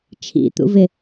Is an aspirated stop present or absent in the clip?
present